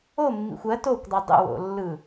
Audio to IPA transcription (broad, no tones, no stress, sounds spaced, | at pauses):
o mː ḭ xʷ ɜ t o kʷ dˤ ɯ dˤ ə̰ w o̰ lː ɯ